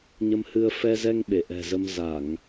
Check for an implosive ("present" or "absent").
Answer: present